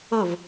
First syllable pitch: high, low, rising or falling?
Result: falling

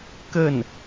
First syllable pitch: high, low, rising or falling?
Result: falling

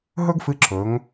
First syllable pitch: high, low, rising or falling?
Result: high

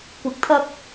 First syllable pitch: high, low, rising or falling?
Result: rising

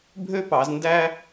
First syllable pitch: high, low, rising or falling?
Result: high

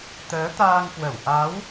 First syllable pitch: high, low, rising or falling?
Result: rising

